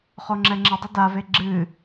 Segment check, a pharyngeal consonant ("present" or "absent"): absent